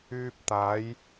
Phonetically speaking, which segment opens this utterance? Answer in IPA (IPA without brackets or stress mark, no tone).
yː